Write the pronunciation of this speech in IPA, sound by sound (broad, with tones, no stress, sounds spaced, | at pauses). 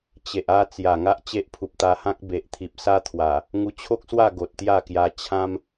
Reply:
t͡ɕ e˨ ʔ a˥˧ t͡s j a˨˩ ŋ a˦ ʔ t͡ɕ e˦ ʔ pʰ u˨ p̚ t̪ a˧ h ã˦ k̚ b e˨ ʔ t̪ʰ i˨ p̚ s a˦ t̪ʰ w a˨˩ | ŋ u˧ t͡ɕʰ o˦ k̚ s w a˥˧ ɡ o˨ t̚ t̪ j a˥˧ k j a˧ t͡ɕʰ ã˦ m